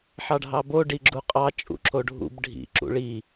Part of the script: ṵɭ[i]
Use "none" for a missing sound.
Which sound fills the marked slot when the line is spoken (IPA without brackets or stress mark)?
i